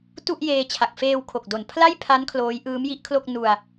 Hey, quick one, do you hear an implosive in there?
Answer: no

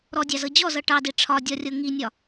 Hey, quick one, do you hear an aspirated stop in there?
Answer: yes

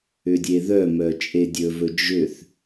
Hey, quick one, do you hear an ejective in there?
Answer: yes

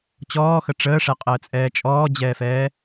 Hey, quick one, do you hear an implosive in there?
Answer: no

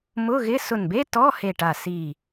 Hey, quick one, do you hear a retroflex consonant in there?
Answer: yes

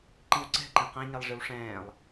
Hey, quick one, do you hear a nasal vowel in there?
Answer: yes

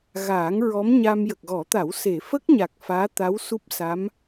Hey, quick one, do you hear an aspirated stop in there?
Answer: no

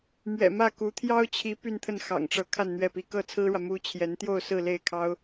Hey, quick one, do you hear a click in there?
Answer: no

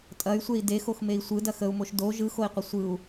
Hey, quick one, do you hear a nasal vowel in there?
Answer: no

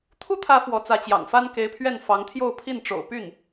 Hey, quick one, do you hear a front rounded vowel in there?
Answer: yes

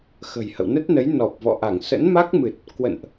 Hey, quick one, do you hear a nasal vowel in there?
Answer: no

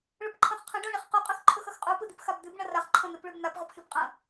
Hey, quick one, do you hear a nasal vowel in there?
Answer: yes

